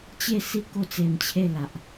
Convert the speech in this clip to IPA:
t͡ɕ e˥˧ s i˦ k o˦ t͡s e˧ m t͡ɕʰ e˥˧ l a˨ ʔ

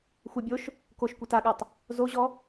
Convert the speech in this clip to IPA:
xʷ ʌ bʲ o ʃ | k o ʃ kʷ ɐ t a ɠ a tˤ | z o ʑ ɔ

